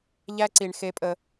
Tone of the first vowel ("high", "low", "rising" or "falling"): high